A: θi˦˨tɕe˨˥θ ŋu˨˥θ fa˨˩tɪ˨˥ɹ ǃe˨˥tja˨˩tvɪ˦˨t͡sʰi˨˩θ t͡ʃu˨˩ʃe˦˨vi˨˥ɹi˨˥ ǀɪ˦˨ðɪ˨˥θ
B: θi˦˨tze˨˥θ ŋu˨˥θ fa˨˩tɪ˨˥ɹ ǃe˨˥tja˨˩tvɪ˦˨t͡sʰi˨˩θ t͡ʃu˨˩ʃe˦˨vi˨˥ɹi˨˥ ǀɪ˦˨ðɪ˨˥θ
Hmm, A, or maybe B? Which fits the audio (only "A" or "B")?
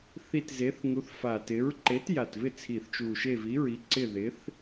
B